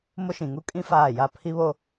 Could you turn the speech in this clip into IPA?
m ʊ˦ ʃ ĩ˨ ŋ u˦ kʼ ĩ˦ f aː˦˨ j a˦˨ pʰ i˦ β o˦

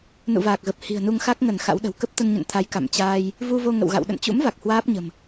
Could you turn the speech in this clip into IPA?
n ṵ˧˨ v aː˨˩ k̚ ɣ ə˨˩ p̚ h i̤˨˩ ə̯ n u˧ ŋ x a˦˥ k̚ ŋ ə˧˩ n x a̰˧˥ w ɗ ə̤˨˩ w k ə˦˥ p̚ t̪ ə˧ n ɲ ə̰˧˨ n t̪ʰ a˨˦ j k a̰˧˨ m t͡ɕ aː˧ j | v u˧ v o˧ ŋ ə̰˧˨ w ɣ a̰˧˨ w ɗ ə̰˧˨ n t͡ɕ ṵ˧˥ m v a˨˩ k̚ h w aː˦˥ p̚ ɲ ə̤˨˩ m

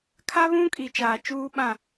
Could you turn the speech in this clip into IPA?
kʰ a˦ β ũ˦ kʼ i˨ t͡ʃ aː˨ t͡ʃ uː˦ ɓ ã˦˨

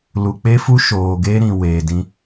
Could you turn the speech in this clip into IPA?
l u˨ k͡p e˦ f u˦ ʃ oː˨ ɡ e˦ ɾ ĩ˨ w eː˨ d ĩ˦

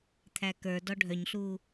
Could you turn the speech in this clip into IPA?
t̪ʰ æ k ə˞ d ɔ ɖʱ œ ɲ ɬ uː

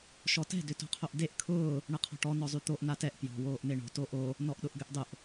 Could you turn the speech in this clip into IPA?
ʃ ɔ t ɛ̤ d ʏ t o̤ qʰ o ʔ d e ʔ kʰ ʊː | ɳ ə qʰ ɔ̤ ʈ ɔ n ɔ zˤ y t̪ o ʔ n a t ɛ ʔ p j ɔ̤ w oː ʔ n e ɳ o̤ t o ʔ o | n ɔ ʔ ɗ ʊ ʔ ɡ ʏ ʔ dˤ ʊ ʔ

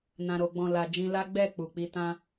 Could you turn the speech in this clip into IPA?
n ã˨ ɾ o˨ ɡ͡b ɔ̃˨ l a˨ d͡ʒ ĩ˧ l a˦ ɡ͡b ɛ˦˨ k͡p u˨ k͡p i˧ t ã˧

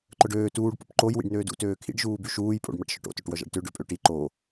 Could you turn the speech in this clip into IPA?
ǃ œ ɖ øː t uː ɖ p ṵ p ǃ o j w ḭ ɖ n øː d ṵ t øː kʰ ḭ ɖ ʒ uː b y ʃ uː j pʼ o̰ ɖ m a ʈ ʃ œ ʈ o̰ t ø ʈ w œ ʒ a̰ ɖ t ø ɖ ø pʼ ø ʈ i ǃ o

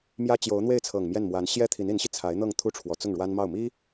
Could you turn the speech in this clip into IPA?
m j ä˥ t͡ɕ j o˧˥ ʊ̯ n̪ w e˥˩ ɪ̯ t͡sʰ ɤ˨˩ ŋ m j ɛ˥˩ n m w a˧˥ n ɕ j ɛ˥ t̪ʰ i˧˥ n i˧˥ n ɕ i˧ t͡sʰ a˧˥ ɪ̯ n̪ ɤ˥˧ ŋ t̪ʰ u˥˩ ʈ͡ʂʰ w ɔ˧˥ t͡s ʊ˥˩ ŋ ɻ w a˥ n m ɑ˥˩ ʊ̯ m i˥

